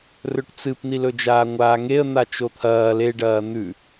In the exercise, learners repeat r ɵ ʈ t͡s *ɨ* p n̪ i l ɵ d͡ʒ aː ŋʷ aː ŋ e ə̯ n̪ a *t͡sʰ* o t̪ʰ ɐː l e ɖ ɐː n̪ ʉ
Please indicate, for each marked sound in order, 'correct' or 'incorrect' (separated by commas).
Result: correct, incorrect